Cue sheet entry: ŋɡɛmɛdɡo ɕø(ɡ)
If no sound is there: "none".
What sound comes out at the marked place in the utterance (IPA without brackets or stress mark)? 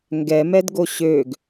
ɡ